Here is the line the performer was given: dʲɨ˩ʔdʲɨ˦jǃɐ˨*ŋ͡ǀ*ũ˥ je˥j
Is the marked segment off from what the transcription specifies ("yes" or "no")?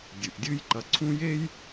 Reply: yes